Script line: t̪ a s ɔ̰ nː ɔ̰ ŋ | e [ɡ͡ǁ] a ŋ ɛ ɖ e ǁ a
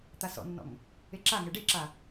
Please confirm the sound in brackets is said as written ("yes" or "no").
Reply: no